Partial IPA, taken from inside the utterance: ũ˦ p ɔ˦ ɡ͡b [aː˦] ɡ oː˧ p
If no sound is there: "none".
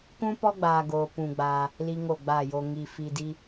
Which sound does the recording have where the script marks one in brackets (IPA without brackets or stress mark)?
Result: aː˦